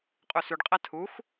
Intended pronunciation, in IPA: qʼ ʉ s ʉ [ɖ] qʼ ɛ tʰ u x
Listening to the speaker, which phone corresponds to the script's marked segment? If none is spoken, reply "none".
ɖ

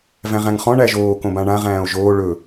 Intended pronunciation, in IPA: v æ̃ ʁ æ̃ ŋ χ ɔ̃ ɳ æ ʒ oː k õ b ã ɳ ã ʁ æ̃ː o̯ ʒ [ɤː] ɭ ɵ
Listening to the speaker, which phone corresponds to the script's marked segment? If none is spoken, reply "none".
oː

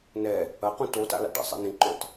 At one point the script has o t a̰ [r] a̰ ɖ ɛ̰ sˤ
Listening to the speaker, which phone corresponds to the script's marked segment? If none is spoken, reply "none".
l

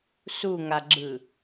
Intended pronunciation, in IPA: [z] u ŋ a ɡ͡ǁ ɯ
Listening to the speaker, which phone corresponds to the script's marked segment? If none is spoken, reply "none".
s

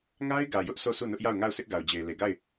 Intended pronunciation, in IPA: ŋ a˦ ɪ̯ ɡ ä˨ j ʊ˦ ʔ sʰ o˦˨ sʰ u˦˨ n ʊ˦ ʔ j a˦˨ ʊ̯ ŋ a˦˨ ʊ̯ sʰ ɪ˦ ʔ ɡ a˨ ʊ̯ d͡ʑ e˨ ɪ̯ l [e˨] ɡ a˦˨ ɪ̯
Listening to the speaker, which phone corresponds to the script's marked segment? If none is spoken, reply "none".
e˨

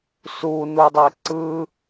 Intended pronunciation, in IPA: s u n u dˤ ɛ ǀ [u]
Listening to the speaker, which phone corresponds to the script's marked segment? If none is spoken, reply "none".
ɯ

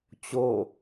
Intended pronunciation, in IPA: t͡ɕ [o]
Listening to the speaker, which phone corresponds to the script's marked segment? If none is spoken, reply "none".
o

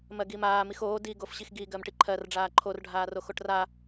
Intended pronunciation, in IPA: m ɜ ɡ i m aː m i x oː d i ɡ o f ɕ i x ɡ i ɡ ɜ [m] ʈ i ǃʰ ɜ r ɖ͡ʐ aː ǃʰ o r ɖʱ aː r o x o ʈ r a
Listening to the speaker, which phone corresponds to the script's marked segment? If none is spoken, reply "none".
m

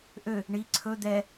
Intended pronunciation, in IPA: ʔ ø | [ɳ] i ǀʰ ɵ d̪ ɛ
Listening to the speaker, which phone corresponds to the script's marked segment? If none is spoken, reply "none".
ɳ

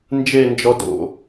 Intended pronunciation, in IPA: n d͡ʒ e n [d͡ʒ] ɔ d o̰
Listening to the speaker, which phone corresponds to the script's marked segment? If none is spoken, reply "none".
d͡ʒ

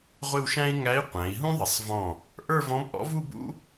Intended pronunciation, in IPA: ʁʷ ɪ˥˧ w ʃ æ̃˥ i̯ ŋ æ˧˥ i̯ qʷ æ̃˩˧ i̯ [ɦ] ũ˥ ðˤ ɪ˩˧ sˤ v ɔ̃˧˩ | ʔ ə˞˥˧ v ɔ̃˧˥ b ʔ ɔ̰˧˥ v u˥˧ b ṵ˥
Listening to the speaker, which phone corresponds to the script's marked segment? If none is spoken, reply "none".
ɦ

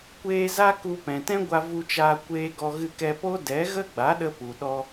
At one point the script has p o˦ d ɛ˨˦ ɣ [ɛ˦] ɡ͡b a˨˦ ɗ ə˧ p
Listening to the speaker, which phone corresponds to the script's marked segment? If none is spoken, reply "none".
ə˦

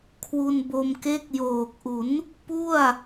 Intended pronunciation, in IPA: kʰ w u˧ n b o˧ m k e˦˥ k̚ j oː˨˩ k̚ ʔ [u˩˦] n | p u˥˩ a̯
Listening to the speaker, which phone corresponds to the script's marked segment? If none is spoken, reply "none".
u˩˦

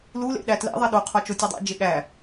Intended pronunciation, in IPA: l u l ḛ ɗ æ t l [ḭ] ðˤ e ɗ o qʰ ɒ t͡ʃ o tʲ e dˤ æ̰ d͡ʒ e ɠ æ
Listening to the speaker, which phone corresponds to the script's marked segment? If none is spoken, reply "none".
ḛ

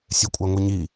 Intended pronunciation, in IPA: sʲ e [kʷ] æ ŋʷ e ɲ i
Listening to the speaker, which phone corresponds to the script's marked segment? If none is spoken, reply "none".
kʷʼ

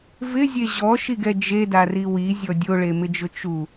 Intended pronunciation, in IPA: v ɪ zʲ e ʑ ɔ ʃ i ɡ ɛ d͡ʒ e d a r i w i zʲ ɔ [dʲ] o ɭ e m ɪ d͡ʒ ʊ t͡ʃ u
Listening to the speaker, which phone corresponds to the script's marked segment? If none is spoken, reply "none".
dʲ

